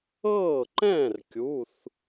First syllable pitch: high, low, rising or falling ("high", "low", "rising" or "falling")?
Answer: falling